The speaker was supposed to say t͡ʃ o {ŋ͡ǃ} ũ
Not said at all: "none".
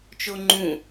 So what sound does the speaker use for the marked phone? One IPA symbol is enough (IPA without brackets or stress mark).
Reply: ŋ͡ǃ